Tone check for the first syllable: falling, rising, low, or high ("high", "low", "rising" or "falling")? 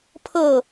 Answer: falling